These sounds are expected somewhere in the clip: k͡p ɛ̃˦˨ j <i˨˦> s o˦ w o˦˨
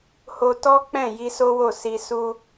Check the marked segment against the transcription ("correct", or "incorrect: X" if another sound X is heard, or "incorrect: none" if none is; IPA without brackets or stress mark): incorrect: i˧